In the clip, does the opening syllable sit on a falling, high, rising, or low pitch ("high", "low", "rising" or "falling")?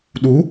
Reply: rising